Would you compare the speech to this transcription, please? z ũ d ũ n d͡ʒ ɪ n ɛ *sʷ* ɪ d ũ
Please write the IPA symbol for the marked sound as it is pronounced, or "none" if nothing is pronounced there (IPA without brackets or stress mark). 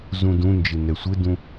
sʷ